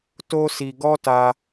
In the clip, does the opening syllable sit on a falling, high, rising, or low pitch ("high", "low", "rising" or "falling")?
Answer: high